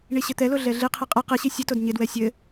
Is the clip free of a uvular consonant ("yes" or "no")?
no